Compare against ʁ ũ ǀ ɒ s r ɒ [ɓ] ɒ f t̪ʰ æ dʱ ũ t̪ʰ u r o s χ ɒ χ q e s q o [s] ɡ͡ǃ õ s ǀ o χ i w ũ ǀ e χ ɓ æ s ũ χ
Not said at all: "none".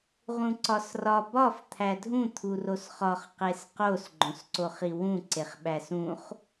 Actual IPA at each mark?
b, s

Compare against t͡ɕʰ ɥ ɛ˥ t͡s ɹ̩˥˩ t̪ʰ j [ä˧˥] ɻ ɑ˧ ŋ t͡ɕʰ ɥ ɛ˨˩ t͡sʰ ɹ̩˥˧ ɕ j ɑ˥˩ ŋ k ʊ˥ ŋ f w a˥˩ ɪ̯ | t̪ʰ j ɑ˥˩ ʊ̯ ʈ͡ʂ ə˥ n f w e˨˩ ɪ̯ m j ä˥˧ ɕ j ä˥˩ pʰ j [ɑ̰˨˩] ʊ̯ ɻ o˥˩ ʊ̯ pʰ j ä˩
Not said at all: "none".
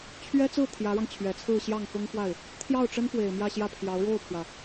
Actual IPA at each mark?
ä˧˥, ɑ˧˥

